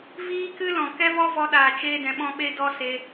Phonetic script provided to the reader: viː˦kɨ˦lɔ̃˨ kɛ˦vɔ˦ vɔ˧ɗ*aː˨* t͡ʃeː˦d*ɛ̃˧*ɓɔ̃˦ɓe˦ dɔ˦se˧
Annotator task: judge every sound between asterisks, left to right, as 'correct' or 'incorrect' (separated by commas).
correct, correct